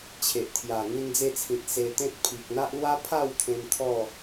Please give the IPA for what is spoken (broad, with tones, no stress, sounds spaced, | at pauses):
t͡ɕʰ e˨ ʔ t̪ʰ j a˨˩ ŋ ĩ˧ n d͡z e˧ t͡sʰ ĩ˨ t̚ s e˧ t̪ ẽ˦ t̚ pʰ i˨ k̚ n̪ a˦ ʔ l w a˦ pʰ a˥˧ w t̪ʰ ẽ˧ m t̪ʰ ɔ˥˧